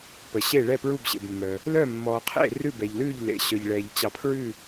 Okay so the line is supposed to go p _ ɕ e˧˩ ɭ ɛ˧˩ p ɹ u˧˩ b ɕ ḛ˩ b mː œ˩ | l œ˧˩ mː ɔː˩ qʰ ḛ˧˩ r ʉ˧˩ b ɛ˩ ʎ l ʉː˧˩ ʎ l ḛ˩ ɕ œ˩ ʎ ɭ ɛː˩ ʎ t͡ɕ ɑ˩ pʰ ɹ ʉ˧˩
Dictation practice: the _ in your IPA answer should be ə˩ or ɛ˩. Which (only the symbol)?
ə˩